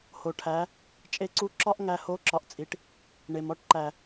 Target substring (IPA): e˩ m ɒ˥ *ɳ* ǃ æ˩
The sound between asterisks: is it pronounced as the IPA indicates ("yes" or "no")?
no